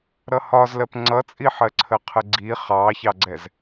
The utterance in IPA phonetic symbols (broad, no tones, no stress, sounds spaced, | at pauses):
ɾ ʌ h ɒ z l ɜ p ŋ͡ǀ ʌ t͡sʼ i ħ ɜ ǀʰ ə qʰ ə ɡ͡ǀ i χ ɑ ç ɑ ɡ͡ǀ ɛ z